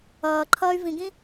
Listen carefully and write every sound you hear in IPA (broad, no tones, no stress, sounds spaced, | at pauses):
ʌː ǃʰ ʌː y̯ v ĩ ɡ ĩ